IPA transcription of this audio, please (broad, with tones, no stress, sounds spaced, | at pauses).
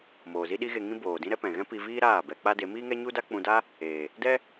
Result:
m oː˨ z i˦ ɗ i˦ ɣ e˧ ŋ ĩ˦ b oː˨ d ĩ˦ ɾ ɛ˦ p ɛ̃˨ ɣ ɛ̃˦ p i˧ v iː˦ ɾ aː˦˨ b ɛ˧ k͡p a˦ d e˨˦ m iː˦ ŋ ɛ˦ ɲ u˦ d a˦ k͡p ũ˧ d a˦ | eː˨ | d ɛ˦